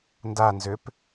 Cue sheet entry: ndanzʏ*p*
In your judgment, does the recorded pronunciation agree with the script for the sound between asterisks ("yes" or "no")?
yes